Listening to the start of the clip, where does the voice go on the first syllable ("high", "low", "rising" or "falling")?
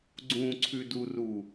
low